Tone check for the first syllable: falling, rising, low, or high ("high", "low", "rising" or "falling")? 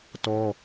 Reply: high